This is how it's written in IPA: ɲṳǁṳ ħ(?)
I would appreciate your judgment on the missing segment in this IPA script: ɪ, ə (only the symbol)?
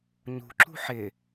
ɪ